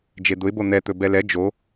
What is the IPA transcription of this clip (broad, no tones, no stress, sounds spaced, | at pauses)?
d͡ʒ e d̪ ʊ ɪ̯ b o n̪ ɛ t̪ ɵ b ɛ l ɛ d͡ʒ o